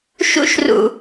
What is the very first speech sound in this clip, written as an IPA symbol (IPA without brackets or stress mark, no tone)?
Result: ʃ